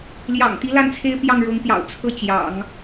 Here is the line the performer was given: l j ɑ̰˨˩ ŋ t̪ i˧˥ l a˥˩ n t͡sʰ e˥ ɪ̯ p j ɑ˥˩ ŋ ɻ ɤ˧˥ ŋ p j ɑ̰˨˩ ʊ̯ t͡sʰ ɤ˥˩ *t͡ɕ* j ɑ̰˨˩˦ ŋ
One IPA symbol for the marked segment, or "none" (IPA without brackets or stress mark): t͡ɕ